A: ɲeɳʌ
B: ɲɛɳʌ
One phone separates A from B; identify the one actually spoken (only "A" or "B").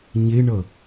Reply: A